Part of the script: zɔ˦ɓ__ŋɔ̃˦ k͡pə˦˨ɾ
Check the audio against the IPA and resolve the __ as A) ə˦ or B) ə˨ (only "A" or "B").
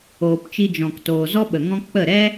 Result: B